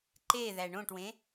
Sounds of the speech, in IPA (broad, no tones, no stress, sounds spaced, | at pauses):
ǃ e ð æ ɳ õ ʈ w ẽ